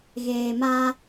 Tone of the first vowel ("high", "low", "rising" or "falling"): low